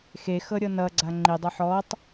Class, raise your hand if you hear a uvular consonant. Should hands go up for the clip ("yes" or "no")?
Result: no